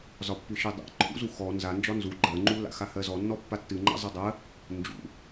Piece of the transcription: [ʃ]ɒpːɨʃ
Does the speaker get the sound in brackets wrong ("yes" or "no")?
yes